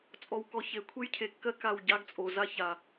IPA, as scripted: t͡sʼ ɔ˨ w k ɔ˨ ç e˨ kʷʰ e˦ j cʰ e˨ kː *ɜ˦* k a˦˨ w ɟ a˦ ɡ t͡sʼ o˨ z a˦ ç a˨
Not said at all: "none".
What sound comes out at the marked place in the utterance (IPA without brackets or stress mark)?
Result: ɜ˦